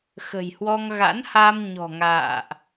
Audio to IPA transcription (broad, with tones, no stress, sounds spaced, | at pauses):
x ə̤˨˩ j h w ɔ˧ ŋ ɣ a̰˧˥ n h a˧ m ɲ ɔ̤˨˩ ŋ a̰ː˧˨ ʔ